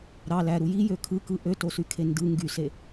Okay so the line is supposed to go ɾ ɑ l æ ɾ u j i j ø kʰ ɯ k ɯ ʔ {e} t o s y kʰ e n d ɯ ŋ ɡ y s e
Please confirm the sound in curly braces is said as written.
no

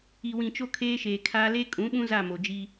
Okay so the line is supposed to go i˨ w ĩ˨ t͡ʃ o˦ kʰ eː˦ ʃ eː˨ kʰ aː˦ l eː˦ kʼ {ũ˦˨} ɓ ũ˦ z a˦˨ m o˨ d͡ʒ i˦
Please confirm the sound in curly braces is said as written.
no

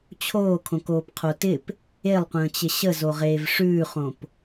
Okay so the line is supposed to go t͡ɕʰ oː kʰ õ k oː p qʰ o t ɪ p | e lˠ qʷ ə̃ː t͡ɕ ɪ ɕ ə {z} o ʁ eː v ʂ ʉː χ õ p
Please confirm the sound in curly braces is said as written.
yes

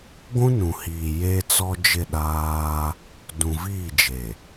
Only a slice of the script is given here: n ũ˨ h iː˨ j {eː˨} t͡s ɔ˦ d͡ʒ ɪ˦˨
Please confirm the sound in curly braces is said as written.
no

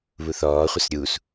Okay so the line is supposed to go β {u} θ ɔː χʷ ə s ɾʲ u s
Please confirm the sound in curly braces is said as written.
yes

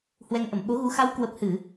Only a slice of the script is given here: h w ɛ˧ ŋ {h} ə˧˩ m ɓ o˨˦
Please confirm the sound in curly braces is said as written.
no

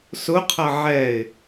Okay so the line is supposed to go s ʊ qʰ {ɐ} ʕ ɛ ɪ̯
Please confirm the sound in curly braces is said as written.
yes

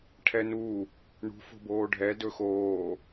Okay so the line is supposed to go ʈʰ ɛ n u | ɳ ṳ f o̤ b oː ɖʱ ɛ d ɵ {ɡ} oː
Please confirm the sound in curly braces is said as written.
no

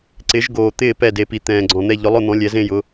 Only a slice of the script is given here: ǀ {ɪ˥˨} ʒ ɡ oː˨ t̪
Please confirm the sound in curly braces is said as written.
no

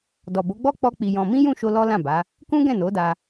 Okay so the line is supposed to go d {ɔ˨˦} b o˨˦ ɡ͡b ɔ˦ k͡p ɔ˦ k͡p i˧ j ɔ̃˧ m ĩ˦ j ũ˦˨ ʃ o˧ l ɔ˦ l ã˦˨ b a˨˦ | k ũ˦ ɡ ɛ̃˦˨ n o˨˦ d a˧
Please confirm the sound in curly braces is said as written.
no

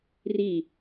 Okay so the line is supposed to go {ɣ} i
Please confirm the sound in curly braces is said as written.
no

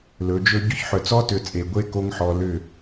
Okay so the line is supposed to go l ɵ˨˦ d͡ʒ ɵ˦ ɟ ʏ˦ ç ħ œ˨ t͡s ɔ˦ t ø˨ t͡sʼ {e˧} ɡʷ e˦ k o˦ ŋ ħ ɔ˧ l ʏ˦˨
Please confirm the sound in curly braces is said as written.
no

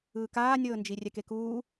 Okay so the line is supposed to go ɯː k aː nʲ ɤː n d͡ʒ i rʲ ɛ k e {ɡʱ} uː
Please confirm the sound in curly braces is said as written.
no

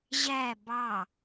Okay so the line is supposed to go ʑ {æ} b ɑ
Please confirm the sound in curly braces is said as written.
yes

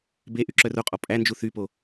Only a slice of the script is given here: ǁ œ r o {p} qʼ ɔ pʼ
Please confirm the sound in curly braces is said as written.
no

